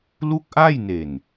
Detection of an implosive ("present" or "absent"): absent